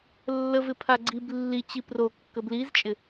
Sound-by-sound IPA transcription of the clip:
lː ə v ɪ pʰ a ɡ͡ǀ i b lː i t͡ɕ i p r o kː ə b l i z t͡ʃʼ ɪ

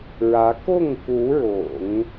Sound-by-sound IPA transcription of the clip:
ɻ ä˧˥ k ʊ˥˩ ŋ k u˧˥ ɻ ʊ̰˨˩˦ ŋ

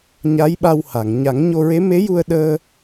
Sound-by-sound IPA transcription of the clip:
ɲ a˧˥ j ɓ a˧ w h a˨˩˨ ŋ ɲ a˨˩˦ ŋ ɲ o˧ ɹ e˧˥ m e˧˥ j u˧ ə̯ ɗ əː˧

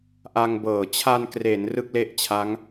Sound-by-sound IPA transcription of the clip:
ʔ a˧ ŋ b ɤː˨˩ t͡ɕʰ a˧ n k r e˩˦ n r ɯ˥˩ k̚ l e˥˩ ʔ t͡ɕʰ a˦˥ ŋ

